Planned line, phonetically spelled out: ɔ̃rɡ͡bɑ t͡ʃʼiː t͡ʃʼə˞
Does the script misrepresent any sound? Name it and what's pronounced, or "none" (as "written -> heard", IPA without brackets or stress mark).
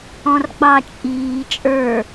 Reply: none